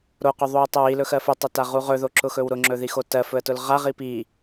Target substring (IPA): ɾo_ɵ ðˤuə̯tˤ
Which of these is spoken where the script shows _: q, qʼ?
q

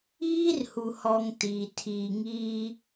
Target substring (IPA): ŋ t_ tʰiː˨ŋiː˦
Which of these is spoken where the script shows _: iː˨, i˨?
iː˨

